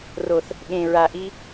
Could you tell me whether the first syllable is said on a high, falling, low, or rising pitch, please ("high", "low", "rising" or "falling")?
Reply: low